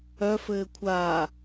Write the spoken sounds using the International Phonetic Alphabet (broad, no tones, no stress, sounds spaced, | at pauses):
œ f ɘː kʷʰ aː